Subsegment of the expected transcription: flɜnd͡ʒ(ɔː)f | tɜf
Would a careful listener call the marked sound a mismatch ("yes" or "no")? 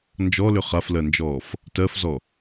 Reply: no